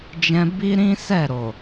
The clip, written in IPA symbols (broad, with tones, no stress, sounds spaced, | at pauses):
d͡ʒ ɛ̃˧ b i˦ ɾ ĩ˦ s ɛ˦˨ ɾ o˨